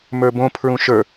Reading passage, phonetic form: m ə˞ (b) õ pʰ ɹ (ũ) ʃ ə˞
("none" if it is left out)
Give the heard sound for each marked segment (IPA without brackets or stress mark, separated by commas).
b, ũ